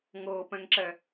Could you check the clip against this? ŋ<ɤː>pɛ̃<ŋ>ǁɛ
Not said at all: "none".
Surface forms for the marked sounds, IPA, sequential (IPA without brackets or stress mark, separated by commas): ɤː, ŋ